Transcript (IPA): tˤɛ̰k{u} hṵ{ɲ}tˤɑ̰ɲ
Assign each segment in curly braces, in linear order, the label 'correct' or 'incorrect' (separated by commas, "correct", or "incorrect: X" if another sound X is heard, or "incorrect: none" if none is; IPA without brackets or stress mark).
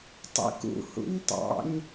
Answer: incorrect: ṵ, correct